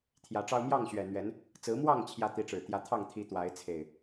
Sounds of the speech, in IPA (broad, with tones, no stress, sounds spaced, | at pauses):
t̪ʰ j ä˨˦ ʈ͡ʂ ɑ˦ ʊ̯ m j ɑ˥˨ ŋ ɕ ɥ ɛ˨˩ n̪ ɥ ɛ˨˦ n | t͡s ɹ̩˨˦ m w ɑ˥˨ ŋ t͡ɕʰ j ä˨˦ t̪ i˨˦ ʈ͡ʂ ɻ̩˨˩ t̪ j ä˨˦ t̪ʰ ɑ˥˨ ŋ t̪ʰ i˨˦ t̪ w a˨˦ ɪ̯ t͡sʰ e˨˩ ɪ̯